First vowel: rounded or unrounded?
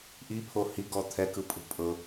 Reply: unrounded